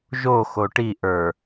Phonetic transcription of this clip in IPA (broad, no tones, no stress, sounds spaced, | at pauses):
ʒ o x o ʈ i ʔ ə˞